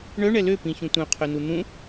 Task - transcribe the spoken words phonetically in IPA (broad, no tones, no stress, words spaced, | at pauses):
ɳœ ɳɛlø pĩçũtʷœ̃ qʰœnun̪ũ